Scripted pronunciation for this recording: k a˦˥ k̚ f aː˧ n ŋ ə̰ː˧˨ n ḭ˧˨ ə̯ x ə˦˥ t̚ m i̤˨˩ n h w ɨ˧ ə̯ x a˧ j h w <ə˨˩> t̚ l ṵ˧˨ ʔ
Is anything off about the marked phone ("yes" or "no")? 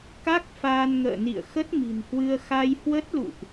yes